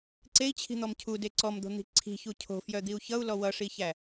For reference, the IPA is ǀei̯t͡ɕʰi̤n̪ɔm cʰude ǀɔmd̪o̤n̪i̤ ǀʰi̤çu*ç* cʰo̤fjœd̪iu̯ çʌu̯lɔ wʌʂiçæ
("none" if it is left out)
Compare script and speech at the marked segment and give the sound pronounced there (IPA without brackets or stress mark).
none